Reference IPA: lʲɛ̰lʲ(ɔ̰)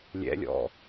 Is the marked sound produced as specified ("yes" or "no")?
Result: yes